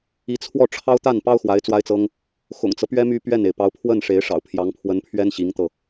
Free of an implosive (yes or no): yes